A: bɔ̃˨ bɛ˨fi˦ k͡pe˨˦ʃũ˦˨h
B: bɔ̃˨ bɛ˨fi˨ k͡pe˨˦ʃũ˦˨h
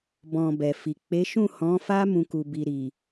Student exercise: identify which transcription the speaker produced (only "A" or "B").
B